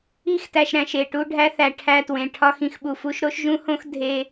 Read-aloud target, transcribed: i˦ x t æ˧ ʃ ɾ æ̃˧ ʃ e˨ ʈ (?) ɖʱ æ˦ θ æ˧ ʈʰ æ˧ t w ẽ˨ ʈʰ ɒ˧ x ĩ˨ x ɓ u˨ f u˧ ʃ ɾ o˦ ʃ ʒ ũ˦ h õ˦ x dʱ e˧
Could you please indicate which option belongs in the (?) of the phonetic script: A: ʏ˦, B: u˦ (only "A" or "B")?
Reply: B